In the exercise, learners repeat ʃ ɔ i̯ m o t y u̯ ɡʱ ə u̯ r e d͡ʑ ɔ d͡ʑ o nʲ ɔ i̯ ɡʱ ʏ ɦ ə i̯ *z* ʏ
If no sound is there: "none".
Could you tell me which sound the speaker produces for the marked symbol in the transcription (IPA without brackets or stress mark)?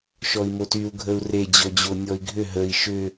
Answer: ʃ